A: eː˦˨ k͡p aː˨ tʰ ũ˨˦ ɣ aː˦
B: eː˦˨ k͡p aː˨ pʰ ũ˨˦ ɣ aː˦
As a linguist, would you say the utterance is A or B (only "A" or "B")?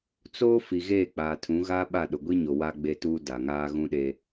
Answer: A